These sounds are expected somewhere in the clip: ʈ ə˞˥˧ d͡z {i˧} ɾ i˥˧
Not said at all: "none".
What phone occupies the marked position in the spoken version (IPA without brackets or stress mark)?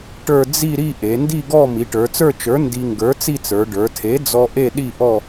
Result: i˥˧